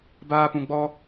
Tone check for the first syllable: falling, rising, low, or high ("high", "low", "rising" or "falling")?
high